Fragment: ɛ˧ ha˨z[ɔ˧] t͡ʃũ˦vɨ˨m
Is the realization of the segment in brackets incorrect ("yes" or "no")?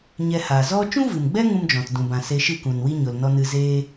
yes